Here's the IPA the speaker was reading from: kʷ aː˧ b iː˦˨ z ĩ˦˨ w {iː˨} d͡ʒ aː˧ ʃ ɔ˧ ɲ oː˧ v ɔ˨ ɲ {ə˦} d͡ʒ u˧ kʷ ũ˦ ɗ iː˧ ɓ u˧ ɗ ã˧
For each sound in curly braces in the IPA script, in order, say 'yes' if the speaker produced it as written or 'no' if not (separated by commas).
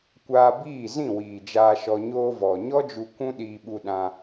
yes, no